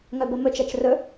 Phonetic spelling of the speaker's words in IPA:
ŋ œ b ə m ɵ t͡ʃ ɛ t͡ʃ r ɵ

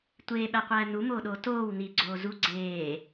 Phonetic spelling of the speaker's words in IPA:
tʷ eː ɓ æ qʷ æː n u m oː ɗ oː t oː w n i ɡ͡ǀ oː z u ɡ͡ǀ eː

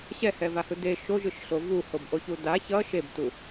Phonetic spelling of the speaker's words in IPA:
ɕ ɛ h ɛ v a h ɯ d e ʃ o ʒ ɯ ʃ ɬ o v u h o b ʔ o ç u d a ç ʌ ʃ e b t u

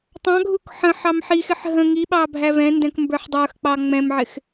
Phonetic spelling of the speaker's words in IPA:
tˤ ɑ̃ ɡʱ u k ħ ə̃ ħ ɑ m ħ i x ɪ ħ ɦ ə̃ ŋ i ɓ ɑ bʱ æ v ɛ̃ n d ɛ̃ k m b ə˞ ħ dˤ ə˞ x k͡p ɑ ŋ͡m ɛ̃ m ʕ ɪ x

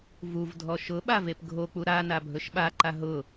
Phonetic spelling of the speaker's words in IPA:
v u v dʱ ɔ ʃ ʊ ɓ a v e p ɡʱ o k͡p u ɾ a n a bʱ ɵ ʃ ɓ a ǃ a ɦ ʊ

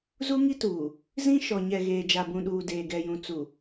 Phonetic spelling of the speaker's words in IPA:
z u˦ ŋ i˦ t uː˨ | z ĩ˦ ʃ ɔ˨ ɲ ɛ˨ ɣ eː˨ d͡ʒ a˨ b ũ˨ ɗ uː˨ d eː˨ ɡ ɛ˨ j ũ˨ t͡s u˨

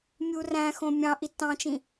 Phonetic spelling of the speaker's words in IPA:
mʲ u r æ̃ x õ mʲ ɑ̃ ʔ i tː ɑ̃ t͡ʃ ĩ

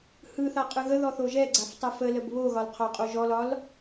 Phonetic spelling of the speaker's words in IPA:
h ɯ θ a qʼ ɯ ɣ ə ð ɔ θ o ʒ ɛ ɡ͡ǀ a f tˤ ɛ f ə l ə b β o ɣ ɒ l qʰ ɒ qʼ o ʒ ɔ l ɒ l

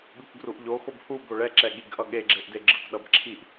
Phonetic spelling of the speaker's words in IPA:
ɠ ɯ k ɡ r u ʔ ʎ o x o b h u b o ɭ ɛ ǁ ɛ ɠ i ɡ ʔ ʌ ɠ e ɡ͡ǁ e ʔ d e ɡ͡ǁ ɯ k ɗ ʌ b ǁʰ i ʔ

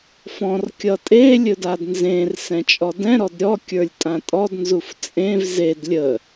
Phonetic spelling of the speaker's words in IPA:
f ɔ̃ r kʲ ʌ tʼ e lʲ ɵ d a d n z ẽ r s ɛ̃ t͡ʃʼ ɔ d ɛ̃ ɾ ɔ d ɾʲ ɔ kʲ ə˞ lʲ tʼ ã tʼ ɔ d n z u f t͡sʼ ẽ v z e d lʲ ə

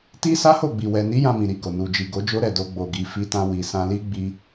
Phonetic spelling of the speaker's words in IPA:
t i˦ s a˦ h o˦˨ ɡ͡b i˨ w ɛ˨ n i˨˦ j ã˧ m ĩ˨ ɾ i˧ ɡ o˨ n u˨ d͡ʒ i˨ ɡ o˨˦ d͡ʒ o˦ ɾ ɛ˦˨ d o˧ ɡ͡b o˨ ɡ i˨ f i˧ t ã˧ w i˨ s ã˧ l i˦ ɡ͡b i˦

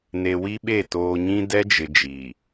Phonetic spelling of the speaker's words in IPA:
n e˨ w i˦ ɓ e˦˨ t oː˨ ɲ ĩ˦ d ɛ˦ d͡ʒ ɪ˨ d͡ʒ i˨

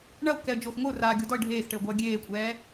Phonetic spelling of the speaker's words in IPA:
ɳ ɐ ʊ̯ k ɛ ə̯ d͡ʒ o x ŋʷ ɘ ʊ̯ r aː ɡʲ o d ɔ ɪ̯ ɖʱ eː x ʈ ɘ ʊ̯ ɡʷ ɐː ɡʲ eː kʷʼ ɛː

